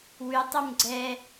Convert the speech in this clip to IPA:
w ʉ tˤ ʉ m ɡ͡ǀ ɛ

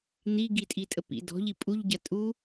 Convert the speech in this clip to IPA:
n̪ i ɡ i tʼ i tʼ ə p ḭ d ɔ̤ ʎ i pʼ u ʎ ɟ ɐ tʼ u

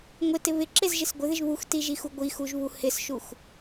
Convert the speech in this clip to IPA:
ŋʷ ɪ t ɪ β ɪ ǁ e z ʒ ɪ s ɡʷ ɪ ð ɪ ʒ β u x t i ʒ i x u ɡʷ i x u ʒ β u h ɪ s ʃ u x

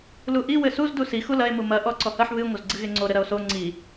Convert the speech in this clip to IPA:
l u ʔ i w ɘ s u z d u s i x u l ɐ e̯ m u m ɐ ʔ ɔ ǀ ɔ h ɐ ħ β ɨ ŋʷ ɐ z ɡ͡ǀ ɨ ɣ e ŋ͡ǀ o ɾ ɘ ɾ ɐ o̯ s o ŋ͡ǀ i

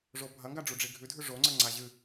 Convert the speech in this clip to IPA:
ʐ o bʱ ɐ ŋ ɡ a ɖ͡ʐ u ɖ͡ʐ i ɡʱ ʉ dʱ ʉ ʐ o ŋ͡ǀ ɐ ŋ͡ǀ a ʑ ɨ

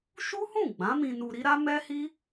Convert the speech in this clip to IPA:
ʃ u˦ h ũ˦˨ ɡ͡b ã˨˦ m ĩ˧ n u˧ ɾ i˦ ɾ a˦ m ɛ˦ h i˦

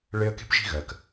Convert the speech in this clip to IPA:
ɭ e˦ ə̯ k e̤˥ p ʒ i̤˦ ɣ ɜ˩ k

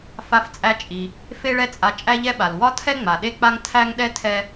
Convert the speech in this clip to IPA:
f a˧ f t͡sʼ æ˧ t͡ʃʼ i˩ | f e˥ ɭ ɛ˥ t͡sʼ a˧ t͡ʃʼ æ˥ ʎ ɛ˥ ɓ a˩ l w ɒ˥ tʰ ɛ˥ ŋ͡m a˩ ɗ e˥ k͡p a˥ ŋ tʰ æ˥ ŋ ɗ ɛ˥ tʰ ɛ˧

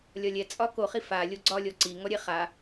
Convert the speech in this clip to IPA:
lʲ ɒ lʲ ɛ t͡sʼ ɒ k o χ i f a lʲ o ɡ͡ǀ ɒ lʲ ɔ ǀ i ŋ ɔ ɾʲ ɛ χ a

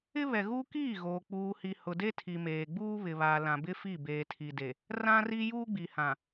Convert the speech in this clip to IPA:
ɪ˦ β ɛ˨ ɣ uː˦ k iː˦˨ ɣ oː˨ k͡p uː˨ h i˨ h ʊ˨ d e˦ tʰ i˨ m eː˨ ɡ͡b uː˦ β ɪ˨ β a˨ l ã˨ b ɪ˦ f i˦˨ b eː˨ tʰ i˨ d e˨ | r ã˦ r i˦ j uː˦ ɡ͡b i˨ h ã˨

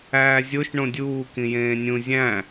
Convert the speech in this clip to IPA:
æː zʲ o ʃ ɳ õ dʲ uː k ĩ j ẽː nʲ ũ zʲ æ̃

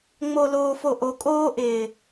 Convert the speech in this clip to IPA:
ŋ͡m o˨ l oː˨ f o˨ ʔ o˨ kʼ oː˦ ʔ ɪː˨

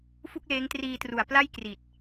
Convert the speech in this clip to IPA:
f u˥˩ k̚ l eː˦˥ ŋ t r iː˧ t r u˨˩ a̯ p l a˥˩ j k r i˨˩ t̚

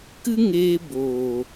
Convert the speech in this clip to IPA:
k ɨ˦ ŋ eː˧ b oː˨

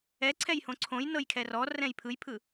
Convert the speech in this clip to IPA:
ɛ ǀʰ ɛ j h õ ǀʰ õ j n ɤ j kʰ ɛ r ɔ r ɛ̃ j pʰ ɯ j pʰ ɯ

